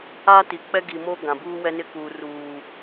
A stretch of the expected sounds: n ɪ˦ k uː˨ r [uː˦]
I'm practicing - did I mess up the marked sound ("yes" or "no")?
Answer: yes